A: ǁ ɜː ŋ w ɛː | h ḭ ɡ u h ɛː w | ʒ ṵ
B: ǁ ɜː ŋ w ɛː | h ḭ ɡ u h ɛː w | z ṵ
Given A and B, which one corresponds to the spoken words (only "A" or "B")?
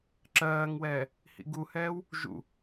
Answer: A